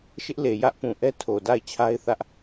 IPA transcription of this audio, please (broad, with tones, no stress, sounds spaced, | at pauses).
ʃ ɪ˦ ʔ l e˨ j ä˦ ʔ p ũ˨ ʔ ɛ˦ tʰ o˨ d a˦˨ ɪ̯ t͡ɕʰ a˦ ɪ̯ θ ä˦ ʔ